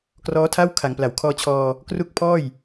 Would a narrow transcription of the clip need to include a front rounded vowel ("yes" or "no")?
no